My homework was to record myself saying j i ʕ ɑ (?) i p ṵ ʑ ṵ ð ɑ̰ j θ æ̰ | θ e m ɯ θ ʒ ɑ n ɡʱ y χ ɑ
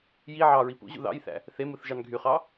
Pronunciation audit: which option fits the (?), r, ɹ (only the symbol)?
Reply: ɹ